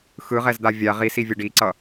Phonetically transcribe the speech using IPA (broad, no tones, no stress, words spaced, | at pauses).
xɯʁɛzd̪a vʲa ʁisivʲʌ ɖiǀʌ